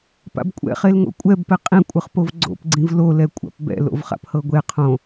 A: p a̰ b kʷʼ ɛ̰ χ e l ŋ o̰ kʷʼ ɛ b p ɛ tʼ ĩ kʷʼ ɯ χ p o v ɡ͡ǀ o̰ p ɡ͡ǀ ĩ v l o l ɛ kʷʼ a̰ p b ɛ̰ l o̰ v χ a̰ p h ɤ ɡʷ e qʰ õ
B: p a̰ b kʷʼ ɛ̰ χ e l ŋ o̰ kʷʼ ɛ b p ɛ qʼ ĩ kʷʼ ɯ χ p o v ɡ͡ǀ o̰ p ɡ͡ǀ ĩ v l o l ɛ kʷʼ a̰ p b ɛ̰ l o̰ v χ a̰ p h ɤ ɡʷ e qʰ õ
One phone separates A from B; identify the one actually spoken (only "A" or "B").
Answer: B